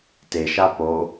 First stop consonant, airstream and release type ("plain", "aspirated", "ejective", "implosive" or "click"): plain